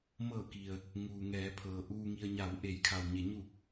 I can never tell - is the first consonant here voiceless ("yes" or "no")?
no